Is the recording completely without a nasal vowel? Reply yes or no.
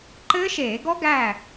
yes